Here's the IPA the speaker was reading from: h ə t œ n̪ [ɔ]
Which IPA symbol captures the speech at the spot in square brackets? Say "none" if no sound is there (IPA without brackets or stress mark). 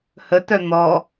ɔ